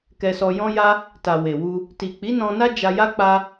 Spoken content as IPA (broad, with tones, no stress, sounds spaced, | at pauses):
k ɛ˧ s ɔ˧ j ɔ̃˦ j a˦ | t a˨ w e˨ w u˧ | t i˨ k͡p i˨˦ n ɔ̃˧ n a˦ d͡ʒ a˧ j a˦ k͡p a˦